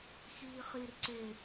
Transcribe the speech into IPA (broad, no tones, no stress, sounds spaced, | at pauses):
x iː χ i r ǀ e